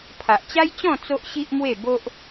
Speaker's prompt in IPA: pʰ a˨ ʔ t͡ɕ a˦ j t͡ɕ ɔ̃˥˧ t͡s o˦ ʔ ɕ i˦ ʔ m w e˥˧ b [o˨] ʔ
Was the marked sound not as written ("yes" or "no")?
yes